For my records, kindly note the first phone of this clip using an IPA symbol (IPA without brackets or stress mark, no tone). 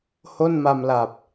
h